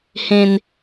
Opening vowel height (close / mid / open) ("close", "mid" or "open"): mid